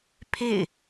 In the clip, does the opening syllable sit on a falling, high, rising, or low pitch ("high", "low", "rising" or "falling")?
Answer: falling